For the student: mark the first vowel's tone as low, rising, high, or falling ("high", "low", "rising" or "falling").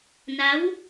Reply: rising